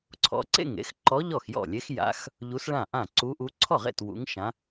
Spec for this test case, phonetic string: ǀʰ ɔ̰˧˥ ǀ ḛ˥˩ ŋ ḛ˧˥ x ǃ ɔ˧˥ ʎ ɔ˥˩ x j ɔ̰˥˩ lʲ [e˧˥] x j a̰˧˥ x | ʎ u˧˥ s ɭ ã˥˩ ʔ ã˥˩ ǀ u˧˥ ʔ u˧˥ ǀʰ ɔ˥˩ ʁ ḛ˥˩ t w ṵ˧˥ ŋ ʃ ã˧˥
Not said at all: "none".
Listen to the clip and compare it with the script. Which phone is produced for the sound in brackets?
e˧˥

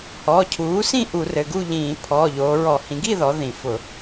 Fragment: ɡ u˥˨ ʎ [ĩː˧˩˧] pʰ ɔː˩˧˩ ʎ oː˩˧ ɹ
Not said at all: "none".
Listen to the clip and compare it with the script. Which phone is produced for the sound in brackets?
ĩː˧˩˧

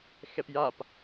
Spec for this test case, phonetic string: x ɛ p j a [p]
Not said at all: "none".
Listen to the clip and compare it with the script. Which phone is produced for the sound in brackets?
p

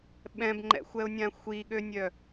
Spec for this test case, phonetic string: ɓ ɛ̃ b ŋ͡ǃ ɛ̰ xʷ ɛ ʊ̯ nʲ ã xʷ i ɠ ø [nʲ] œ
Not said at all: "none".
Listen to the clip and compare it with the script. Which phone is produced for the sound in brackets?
nʲ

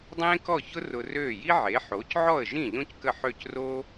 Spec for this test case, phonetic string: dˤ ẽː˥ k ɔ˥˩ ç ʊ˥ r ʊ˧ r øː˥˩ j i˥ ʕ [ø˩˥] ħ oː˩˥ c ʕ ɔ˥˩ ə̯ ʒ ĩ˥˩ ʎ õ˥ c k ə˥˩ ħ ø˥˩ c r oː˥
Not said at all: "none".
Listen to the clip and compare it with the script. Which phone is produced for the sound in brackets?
e˩˥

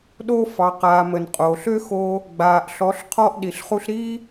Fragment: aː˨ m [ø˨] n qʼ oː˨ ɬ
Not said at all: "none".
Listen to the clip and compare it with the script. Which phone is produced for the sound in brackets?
ə˨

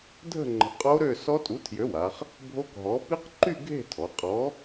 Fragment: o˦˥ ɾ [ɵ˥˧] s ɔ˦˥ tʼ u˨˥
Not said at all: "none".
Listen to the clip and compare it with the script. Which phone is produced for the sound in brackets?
ø˥˧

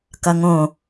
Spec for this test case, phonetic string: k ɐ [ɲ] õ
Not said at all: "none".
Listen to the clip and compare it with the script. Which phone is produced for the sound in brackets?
ŋ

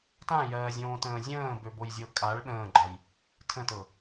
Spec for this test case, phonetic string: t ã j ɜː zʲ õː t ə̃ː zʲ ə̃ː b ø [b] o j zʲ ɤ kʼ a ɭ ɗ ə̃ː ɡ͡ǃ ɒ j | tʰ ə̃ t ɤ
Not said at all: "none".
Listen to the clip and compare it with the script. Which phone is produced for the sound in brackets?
b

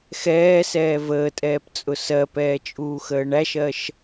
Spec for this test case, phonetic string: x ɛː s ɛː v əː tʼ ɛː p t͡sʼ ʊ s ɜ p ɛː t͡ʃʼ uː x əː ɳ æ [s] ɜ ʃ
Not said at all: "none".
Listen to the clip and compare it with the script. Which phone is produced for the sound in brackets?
ʃ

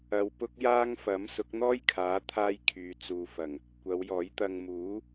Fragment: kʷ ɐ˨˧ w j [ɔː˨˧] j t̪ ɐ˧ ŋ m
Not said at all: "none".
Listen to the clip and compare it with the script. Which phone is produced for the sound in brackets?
ɔː˨˥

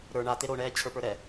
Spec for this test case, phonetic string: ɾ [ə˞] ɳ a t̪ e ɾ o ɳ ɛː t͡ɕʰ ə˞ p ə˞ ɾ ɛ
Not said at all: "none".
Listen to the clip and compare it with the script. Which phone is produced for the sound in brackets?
ə˞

